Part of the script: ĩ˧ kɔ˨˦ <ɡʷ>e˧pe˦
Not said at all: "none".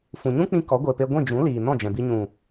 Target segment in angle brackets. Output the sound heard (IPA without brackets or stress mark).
ɡʷ